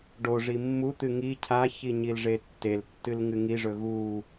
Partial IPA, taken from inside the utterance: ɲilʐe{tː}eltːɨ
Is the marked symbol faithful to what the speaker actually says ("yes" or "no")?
yes